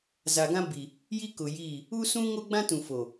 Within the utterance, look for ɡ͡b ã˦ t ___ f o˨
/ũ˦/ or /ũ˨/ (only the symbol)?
ũ˨